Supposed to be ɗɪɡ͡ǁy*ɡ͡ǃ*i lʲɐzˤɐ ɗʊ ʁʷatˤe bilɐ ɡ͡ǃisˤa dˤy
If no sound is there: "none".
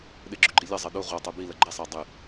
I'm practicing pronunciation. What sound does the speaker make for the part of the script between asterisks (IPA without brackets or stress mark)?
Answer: ɡ͡ǃ